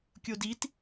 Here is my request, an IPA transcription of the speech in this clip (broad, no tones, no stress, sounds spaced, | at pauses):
kʲ o d i t